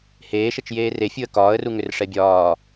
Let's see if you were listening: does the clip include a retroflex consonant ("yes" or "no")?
yes